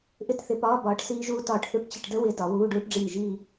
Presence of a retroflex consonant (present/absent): present